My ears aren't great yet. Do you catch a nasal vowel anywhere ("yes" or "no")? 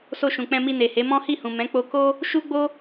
yes